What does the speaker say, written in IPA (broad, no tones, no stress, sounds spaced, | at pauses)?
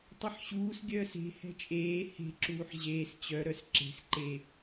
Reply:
tˤ ʌ ħ ɕ uː s ɡʲ œː s e̤ h ɛ̤ t͡ʃʼ eː h e̤ ǁ uː ħ ʑ eː s t͡ɕ œ ɾ œ s ǁ e̤ s ǃ e